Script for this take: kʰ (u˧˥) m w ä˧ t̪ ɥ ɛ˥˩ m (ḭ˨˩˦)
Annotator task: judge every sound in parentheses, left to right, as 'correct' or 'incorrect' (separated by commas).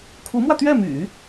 correct, incorrect